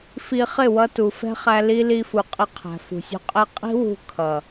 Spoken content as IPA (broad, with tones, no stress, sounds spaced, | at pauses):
f i˧ χ ɪ˦˨ w ʌ˧ t u˨ f ɛ̤˦ χ æ˧ l i˧ l i˧ f u˨ qʼ ɪ˧ qʰ æ̤˨ f ṳ˨ sʲ ṳ˧ qʼ ɛ˦ qʼ i̤˦ w ṳ˧ kʰ ʌ˨